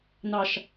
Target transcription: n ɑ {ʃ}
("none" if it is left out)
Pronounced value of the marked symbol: ʃ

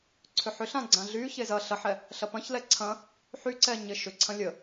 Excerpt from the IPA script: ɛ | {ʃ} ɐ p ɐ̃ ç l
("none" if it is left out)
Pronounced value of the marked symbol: ɬ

